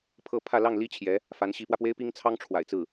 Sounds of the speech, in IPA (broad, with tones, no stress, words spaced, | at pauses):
pʰɤ˥˧pʰä˥˧ lɑ˥˩ŋli˥ t͡ɕʰjɛ˧˥ | fa˧˥nɕi˧˥pwä˧pwe˥ɪ̯ pi˥ŋt͡sʰɑ˥ŋʈ͡ʂʰwa̰˨˩ɪ̯t͡sɹ̩˥˩